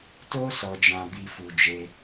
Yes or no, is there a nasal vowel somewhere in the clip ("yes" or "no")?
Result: yes